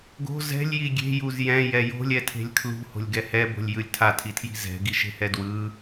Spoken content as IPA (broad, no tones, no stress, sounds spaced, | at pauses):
ɡ o̤ z ɛ̤ lʲ j i ɡʲ e̤ j u z j ɛ̃ j ɛ j o̤ lʲ ɛ tʰ e̤ lʲ kʰ l ṳ h o̤ lʲ ɡ ɛ h ɛ b o̤ lʲ j ɯ lʲ tʰ a tʰ i tʰ j i̤ z ɛ̤ ɡ i ʃ e̤ h ɛ d w ɯ